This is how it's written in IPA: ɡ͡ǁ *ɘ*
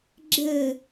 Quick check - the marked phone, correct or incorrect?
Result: correct